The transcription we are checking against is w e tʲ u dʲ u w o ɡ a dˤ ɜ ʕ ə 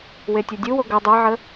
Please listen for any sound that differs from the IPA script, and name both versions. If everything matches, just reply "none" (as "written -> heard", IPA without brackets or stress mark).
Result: a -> ɐ